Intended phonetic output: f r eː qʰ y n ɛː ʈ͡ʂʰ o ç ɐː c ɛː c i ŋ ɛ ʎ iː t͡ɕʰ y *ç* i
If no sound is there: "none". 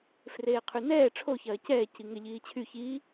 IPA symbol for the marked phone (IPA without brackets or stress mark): ç